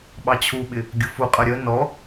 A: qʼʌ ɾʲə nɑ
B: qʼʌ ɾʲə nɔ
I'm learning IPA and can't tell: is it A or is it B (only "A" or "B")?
B